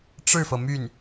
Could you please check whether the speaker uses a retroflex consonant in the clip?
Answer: yes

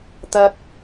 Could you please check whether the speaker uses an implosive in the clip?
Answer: no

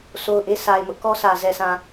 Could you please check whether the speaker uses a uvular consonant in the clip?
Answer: no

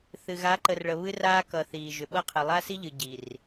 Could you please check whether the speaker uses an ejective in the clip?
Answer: no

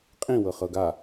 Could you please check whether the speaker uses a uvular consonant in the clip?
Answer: yes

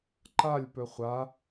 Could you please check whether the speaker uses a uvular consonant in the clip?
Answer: yes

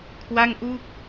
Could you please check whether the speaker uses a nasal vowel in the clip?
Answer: no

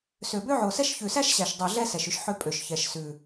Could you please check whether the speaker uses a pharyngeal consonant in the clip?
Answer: yes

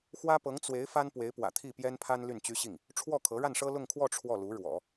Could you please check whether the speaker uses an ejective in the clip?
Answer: no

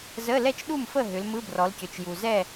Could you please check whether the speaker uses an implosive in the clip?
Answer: yes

